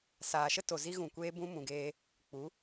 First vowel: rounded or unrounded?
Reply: unrounded